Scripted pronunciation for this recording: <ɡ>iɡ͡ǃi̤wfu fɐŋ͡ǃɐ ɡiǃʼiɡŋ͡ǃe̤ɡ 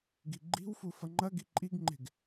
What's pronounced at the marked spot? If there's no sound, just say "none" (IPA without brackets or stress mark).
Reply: ɡ